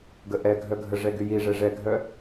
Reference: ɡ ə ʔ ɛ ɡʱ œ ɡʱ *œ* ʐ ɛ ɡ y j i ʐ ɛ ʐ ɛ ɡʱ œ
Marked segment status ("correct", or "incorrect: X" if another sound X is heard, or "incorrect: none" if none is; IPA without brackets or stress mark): incorrect: ə